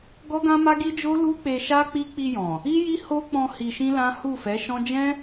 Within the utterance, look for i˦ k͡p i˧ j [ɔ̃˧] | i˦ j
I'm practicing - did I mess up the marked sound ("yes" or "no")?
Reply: yes